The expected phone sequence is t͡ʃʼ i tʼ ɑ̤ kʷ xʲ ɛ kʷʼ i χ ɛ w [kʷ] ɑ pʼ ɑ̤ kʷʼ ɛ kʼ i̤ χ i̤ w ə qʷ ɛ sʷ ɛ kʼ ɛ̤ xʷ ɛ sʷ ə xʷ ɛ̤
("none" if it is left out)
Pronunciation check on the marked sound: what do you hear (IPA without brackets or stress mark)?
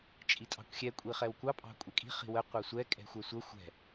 kʷ